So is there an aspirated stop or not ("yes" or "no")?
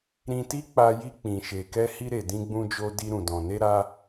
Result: no